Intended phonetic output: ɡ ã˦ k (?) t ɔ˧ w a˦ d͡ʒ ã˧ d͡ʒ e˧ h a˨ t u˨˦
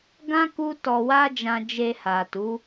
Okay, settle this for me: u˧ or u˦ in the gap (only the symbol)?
u˦